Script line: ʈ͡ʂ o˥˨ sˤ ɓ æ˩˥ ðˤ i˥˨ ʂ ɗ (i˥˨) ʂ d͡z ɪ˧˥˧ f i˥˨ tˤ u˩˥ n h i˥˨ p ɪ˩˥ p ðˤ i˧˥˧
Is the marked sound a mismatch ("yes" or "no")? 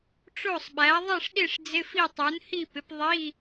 no